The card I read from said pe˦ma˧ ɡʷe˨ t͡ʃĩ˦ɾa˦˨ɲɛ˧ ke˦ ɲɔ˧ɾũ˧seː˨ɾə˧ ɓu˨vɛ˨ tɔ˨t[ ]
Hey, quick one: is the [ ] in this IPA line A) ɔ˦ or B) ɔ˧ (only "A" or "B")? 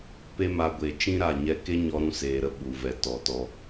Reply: B